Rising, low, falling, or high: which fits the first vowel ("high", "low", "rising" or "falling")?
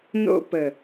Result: high